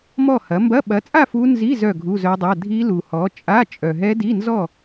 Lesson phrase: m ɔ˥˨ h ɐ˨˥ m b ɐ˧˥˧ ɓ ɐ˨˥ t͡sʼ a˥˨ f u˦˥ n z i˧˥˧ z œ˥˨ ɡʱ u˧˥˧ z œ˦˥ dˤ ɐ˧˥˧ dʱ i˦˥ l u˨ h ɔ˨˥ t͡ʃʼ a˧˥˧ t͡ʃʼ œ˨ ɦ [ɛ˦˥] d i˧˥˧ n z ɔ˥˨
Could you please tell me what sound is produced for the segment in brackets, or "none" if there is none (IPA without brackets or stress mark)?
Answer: ɛ˦˥